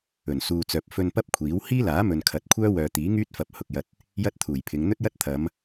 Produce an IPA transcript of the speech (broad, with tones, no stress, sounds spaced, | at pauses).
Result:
ɵ˨˩ n s uː˨ t͡s œː˨ p̚ f ɵ˧ n p ɐ˥ p̚ kʷʰ iː˨˥ w h iː˥ l aː˨˥ m ɵ˨ n kʰ ɐ˨˥ t̚ kʷʰ œː˥ w œː˨ t̪ iː˨˥ ŋ yː˥ t̚ f ɐ˨ p̚ h ʊ˨ k̚ j ɐ˧ t̚ | j ɐ˥ t̚ t̪ʰ uː˨˩ j pʰ ɪ˨˧ ŋ n̪ ɵ˥ t̚ j ɐ˥ t̚ t̪ʰ ɐ˨˧ m